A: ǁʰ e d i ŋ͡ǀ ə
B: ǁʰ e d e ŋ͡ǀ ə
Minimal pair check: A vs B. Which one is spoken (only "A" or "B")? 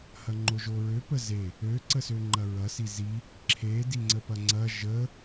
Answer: A